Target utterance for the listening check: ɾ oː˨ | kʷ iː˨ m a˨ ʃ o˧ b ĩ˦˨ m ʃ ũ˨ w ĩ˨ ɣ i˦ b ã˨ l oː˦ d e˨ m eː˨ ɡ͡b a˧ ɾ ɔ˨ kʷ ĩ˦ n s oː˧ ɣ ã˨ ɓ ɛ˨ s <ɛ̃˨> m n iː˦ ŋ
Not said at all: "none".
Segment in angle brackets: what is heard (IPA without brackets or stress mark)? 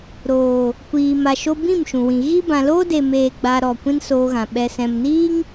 ɛ̃˨